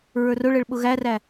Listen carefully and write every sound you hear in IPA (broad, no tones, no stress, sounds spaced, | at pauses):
ɹ ə˞ r ʊ ɭ ɛ ɭ ɓ ʊ ɣ æ r æ